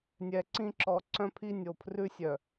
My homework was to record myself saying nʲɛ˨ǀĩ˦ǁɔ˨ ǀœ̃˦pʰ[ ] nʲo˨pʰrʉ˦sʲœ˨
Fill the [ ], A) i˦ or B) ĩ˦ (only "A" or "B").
A